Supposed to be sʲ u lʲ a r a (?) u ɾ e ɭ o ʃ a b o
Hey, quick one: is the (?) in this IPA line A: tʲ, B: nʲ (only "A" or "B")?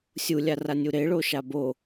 B